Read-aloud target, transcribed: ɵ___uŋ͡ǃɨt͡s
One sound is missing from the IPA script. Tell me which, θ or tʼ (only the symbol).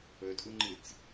tʼ